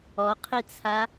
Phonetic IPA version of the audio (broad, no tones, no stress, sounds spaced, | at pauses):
ɔ qʰ i t͡sʰ a